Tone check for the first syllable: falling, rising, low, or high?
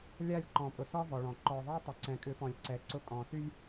falling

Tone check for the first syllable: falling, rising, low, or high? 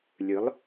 rising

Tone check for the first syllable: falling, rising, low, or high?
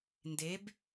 rising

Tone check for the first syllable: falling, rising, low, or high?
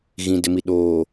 low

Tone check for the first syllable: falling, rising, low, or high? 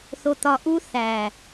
low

